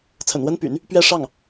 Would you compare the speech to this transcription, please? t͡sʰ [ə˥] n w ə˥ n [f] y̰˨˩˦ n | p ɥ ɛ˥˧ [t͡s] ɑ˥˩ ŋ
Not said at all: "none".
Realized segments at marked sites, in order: ə̰˨˩, p, ʂ

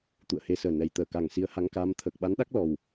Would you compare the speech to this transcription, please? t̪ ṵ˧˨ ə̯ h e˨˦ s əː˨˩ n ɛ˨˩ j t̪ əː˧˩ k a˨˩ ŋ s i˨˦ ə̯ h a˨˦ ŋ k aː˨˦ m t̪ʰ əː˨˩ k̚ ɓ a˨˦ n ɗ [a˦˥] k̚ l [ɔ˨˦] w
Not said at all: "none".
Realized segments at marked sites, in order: a˦˥, ɔ˨˩

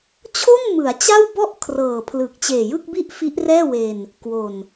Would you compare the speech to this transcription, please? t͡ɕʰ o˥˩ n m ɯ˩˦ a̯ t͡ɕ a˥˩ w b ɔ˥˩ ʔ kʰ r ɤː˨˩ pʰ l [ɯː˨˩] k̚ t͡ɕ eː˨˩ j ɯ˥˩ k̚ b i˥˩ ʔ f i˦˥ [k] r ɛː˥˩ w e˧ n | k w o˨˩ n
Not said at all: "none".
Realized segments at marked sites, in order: ɯ˨˩, ʔ

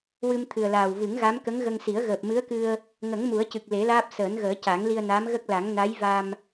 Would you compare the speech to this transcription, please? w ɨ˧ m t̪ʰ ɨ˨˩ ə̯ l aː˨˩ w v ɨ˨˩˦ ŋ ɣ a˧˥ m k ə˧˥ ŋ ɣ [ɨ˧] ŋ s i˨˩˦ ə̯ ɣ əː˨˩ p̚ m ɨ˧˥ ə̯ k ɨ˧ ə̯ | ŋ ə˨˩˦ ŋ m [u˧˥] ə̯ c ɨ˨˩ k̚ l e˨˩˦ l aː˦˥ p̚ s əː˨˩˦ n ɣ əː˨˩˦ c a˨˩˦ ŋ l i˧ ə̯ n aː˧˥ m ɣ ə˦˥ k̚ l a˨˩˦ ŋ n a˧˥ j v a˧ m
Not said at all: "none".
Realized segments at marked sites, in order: ə˧, u˨˩˦

